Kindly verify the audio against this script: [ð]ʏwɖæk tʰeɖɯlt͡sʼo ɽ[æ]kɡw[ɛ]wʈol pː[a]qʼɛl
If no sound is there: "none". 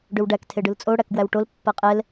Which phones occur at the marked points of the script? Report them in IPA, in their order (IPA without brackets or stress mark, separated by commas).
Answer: ɖ, æ, æ, a